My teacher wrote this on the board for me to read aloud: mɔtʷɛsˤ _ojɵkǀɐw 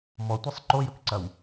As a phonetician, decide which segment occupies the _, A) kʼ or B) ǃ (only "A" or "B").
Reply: B